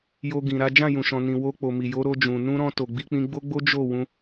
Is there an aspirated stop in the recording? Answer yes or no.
no